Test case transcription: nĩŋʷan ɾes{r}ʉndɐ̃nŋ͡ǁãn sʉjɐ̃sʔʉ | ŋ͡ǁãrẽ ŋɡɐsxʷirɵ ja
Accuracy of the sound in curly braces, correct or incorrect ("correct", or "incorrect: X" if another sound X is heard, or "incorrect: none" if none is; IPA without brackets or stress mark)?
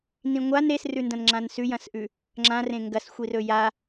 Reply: correct